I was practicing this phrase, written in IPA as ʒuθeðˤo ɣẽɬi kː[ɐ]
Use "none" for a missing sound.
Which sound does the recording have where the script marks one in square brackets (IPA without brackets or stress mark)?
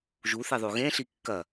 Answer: ɐ